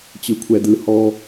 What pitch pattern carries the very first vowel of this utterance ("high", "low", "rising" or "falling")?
high